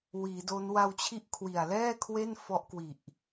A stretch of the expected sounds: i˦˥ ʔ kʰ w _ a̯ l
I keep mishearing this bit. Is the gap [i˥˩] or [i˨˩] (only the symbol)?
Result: i˨˩